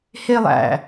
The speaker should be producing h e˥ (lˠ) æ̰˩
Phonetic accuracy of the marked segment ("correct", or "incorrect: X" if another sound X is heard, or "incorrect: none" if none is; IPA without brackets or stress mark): correct